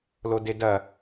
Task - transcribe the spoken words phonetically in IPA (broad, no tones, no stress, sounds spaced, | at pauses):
l o d e d ɐ